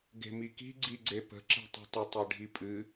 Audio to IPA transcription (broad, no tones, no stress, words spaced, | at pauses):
ɡe̤miki̤ ɡ͡ǀiɡ͡ǀepə̤ ǁe̤tˤi̤tˤə tˤiɖʱipʼɨ